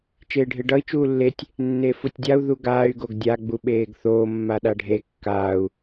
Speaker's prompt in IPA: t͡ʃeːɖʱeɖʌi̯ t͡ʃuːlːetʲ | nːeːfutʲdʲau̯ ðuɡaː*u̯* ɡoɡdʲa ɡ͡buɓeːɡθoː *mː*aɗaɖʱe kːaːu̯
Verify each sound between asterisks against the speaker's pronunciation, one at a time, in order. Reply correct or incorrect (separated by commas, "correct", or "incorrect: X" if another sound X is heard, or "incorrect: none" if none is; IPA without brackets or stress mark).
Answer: incorrect: y̯, correct